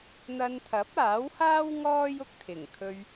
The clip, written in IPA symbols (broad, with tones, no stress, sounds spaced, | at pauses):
n̪ ɐ˧ n t̪ʰ ɐ˨˥ p̚ aː˨˥ w h aː˥ w ŋ ɔː˥ j ʊ˨ k̚ t̪ʰ ɪ˨˩ ŋ kʰ ɵ˧ ɥ